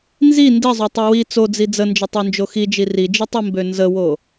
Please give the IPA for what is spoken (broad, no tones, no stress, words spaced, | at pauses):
nzi ndizˤotˤi wi t͡sod͡zi d͡zənd͡ʒətˤønd͡ʒo xid͡ʒi rid͡ʒitˤimbø nzəwo